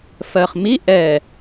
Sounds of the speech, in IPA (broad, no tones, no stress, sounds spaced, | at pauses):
f ɜ χ m i ʔ ɛ